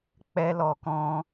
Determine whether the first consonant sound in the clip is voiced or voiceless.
voiceless